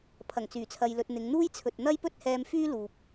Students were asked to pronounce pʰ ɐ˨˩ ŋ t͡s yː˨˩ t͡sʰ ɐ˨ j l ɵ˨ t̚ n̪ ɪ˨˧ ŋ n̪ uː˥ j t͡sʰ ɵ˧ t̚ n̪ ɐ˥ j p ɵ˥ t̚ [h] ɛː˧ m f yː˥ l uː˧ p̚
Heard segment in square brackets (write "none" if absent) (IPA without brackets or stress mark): h